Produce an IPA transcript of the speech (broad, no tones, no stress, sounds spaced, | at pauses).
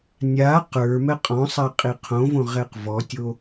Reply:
nʲ a q ə˞ m ɛ qʼ ɔ̃ sˤ a qʼ i qʰ õ v õ ʁ ɛ q v ɔ tʲ o